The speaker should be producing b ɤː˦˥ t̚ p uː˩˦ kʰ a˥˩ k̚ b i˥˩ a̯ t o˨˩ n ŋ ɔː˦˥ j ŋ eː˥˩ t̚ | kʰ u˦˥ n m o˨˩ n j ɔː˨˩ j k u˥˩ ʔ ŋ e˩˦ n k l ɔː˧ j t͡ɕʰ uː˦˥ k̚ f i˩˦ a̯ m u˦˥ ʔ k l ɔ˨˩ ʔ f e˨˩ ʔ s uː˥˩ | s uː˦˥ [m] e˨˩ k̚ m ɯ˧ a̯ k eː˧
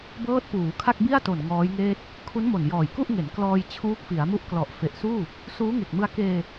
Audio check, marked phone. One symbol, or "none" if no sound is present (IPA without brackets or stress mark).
ŋ